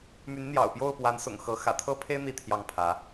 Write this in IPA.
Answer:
m y˨˦ n n̪ j ɑ̰˨˩ ʊ̯ p j o˥˨ ʊ̯ p w a˨˦ n s ʊ̰˨˩ ŋ x ɤ˨˦ x ä̰˨˩ t̪ʰ ɤ˦ pʰ e˦ ɪ̯ n̪ i˥˨ t̪ʰ j ɑ˥˨ ŋ pʰ ä˨˦

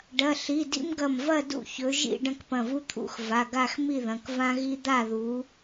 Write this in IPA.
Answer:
ɖ ɐ˩˧˩ ɬ i˩˧˩ d ḭ˥ m ɡ ɐ˧˩ m v ɐ˥˧ d ṵ˥˧ ç ɵ˨˦ ʒ ḭ˥˧ ɖ ɐ̃˥˧ k p ɐ̃˧˩ v u˥ t̪ʰ ṵ˥˧ x v a˩˧˩ ɡ a˥˧ x m i˥˧ ð ɐ̃˩˧˩ k v ã˥ ɣ i˥ d̪ a˥˧ ð u˨˦

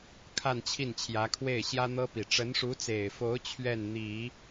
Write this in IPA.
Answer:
kʰ a˥˧ n t͡ɕʰ i˥˩ n t͡ɕʰ j ä˧˥ kʰ w e˥˩ ɪ̯ ɕ j ä˥ n̪ ɤ˥ p i˨˩ ʈ͡ʂ ə˧˥ n ʂ u˧˥ t͡s e˨˩ ɪ̯ f o˧˥ ʊ̯ t͡ɕʰ ɥ ɛ˥˩ n n̪ i˨˩˦

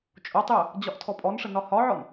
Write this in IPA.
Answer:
t͡ʃʼ o tˤ j ə | d͡ʑ ɒ ʔ tʰ ɔ pʼ ɔ n ʂ ə n ɒ h ɒ ʕ ɔ n

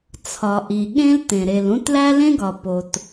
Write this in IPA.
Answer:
t͡sʰ ɒ˩ ʔ i˩ ɠ ẽ˥ l t̪ ẽ˩ ɾ e˩ l ũ˥ t l æ˥ l ẽ˥ ɡ ɒ˩ p o˩ t

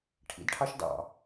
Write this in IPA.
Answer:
ʈʰ ḭ d ʈʰ ɑ ʃ d ɑ̰

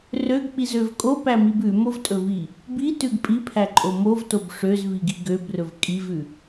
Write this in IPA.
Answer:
r ø ɡ k͡p i z ø v kʼ o p æ m i b ʉ m o v tʼ ɵ v i | b i t ʉ ɡ pʼ i pʰ æ ǃʼ o m o v t o b ʂ ø z v i ɡ i ɡ ø b r ɵ v kʼ i v ʉ

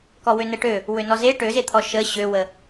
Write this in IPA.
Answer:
k ɔ w ø n ə ʈ ø | w ø n ɔ z e ʈ ø z e t̪ʰ ɔ ʃ ə ɕ ø w ə

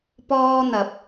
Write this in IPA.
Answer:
p ɔː˥ n̪ ɐ˨ p̚

